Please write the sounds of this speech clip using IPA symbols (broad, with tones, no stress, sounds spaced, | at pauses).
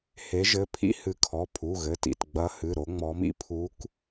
h e˨˦ ʒ ɘ˩˧˩ pʰ ḭ˥ h ɨ˨˦ kʰ ɔ˩˧˩ pʰ u˩˧˩ ɣ ɘ˩˧˩ t ḭ˩˧˩ t ɡ͡b ɐ˨˦ h ɨ˩˧˩ ɾ o˨˦ ŋ͡m ɔ˨˦ m ḭ˥ pʰ u˨˦ k